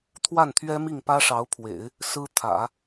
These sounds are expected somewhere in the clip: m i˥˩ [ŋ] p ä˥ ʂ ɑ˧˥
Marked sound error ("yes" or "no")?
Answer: no